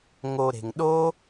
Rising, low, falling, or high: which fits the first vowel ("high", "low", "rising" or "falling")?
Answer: low